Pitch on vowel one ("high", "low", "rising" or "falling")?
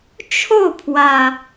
falling